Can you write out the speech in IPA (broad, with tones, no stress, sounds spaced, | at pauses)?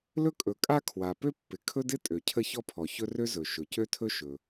l ɵ˥ kʼ ɵ˩ kʼ a˥ kʰ w a˩ p ø˥ pː ɪ˩ kʰ ɵ˥ d ɪ˥ tʼ ø˩ cʰ ə˥ ç ɔ˥ pʰ ɔ˩ ç ɵ˥ r ø˥ z ɵ˩ ʃ ɵ˩ c ø˥ tʰ ɵ˥ ʃ ɵ˩